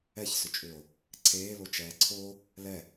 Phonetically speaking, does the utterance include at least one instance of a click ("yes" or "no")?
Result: yes